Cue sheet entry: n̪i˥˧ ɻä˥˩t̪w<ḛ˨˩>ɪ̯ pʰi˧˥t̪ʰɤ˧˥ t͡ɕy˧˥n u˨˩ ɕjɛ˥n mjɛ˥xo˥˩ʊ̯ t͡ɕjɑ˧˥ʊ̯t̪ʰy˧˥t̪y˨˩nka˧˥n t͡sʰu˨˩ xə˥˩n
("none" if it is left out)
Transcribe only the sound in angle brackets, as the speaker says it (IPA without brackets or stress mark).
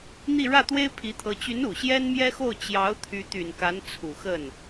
e˥